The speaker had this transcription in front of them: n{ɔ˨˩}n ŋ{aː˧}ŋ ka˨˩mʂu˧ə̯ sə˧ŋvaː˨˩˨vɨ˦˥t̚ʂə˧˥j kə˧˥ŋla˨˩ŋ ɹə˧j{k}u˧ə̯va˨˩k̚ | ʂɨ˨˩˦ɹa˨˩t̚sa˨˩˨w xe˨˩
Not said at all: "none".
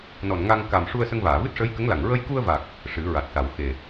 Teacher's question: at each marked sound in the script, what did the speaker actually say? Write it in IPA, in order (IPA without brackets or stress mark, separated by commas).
ɔ˨˩, a˧, k